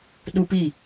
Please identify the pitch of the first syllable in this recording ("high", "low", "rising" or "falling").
high